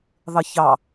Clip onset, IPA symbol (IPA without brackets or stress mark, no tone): ðˤ